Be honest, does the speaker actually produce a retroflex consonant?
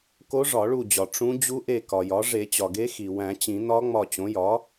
yes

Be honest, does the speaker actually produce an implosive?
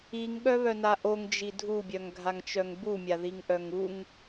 yes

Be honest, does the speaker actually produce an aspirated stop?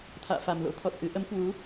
yes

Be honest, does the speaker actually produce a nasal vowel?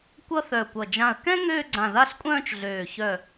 yes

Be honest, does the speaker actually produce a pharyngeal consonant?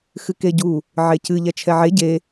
yes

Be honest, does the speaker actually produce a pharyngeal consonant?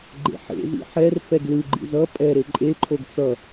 yes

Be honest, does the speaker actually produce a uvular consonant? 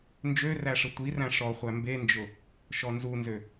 yes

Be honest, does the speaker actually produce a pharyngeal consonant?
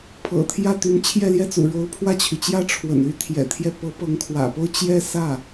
no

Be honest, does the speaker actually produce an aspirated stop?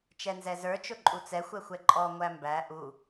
no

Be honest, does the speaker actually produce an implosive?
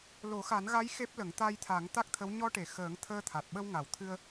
yes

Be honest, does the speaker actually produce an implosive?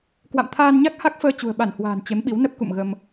yes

